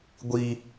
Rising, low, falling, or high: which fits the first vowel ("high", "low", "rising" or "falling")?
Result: high